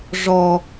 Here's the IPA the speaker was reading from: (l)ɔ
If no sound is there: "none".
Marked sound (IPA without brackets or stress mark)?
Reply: ʐ